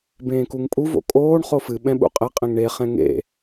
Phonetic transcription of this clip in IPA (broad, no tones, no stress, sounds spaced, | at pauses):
b ẽː k u ŋ pʼ u v o̰ kʼ oː ɳ χ o f ɨ ɓ ɛ̃ ɓ ṵ qʼ ɛ qʼ ɛ̃ ŋ ɳ e χ ɛ̃ ŋ ḛ